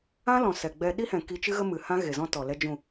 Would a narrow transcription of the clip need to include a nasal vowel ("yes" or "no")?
yes